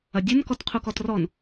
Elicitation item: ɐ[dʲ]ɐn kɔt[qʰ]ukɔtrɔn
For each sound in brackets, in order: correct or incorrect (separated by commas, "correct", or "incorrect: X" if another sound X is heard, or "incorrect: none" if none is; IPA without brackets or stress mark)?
correct, correct